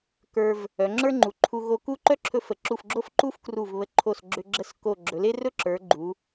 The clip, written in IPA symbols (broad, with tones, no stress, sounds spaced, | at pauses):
k ə˞˧ v | œ˩˧ ŋ͡ǁ ə˞˥ ŋ͡ǃ u˩˧ ǃʰ u˧ ɣ o˧ k u˥˧ ǃ œ˥ ǁʰ ɵ˧ f ə˩˧ ǁ u˧˩ f ɡ͡ǁ o˥ f ǃ u˥ f k r u˧˩ v β ə˧ ǃʰ o˧˩ s ɡ͡ǁ ʏ˧ ɡ͡ǁ ə˥˧ s k o˧˩ ɡ͡ǁ ɵ˩˧ l e˥ r ɵ˥ ǁ ə˞˩˧ ɡ͡ǃ u˩˧